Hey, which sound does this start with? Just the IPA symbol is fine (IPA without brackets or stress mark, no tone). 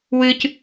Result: w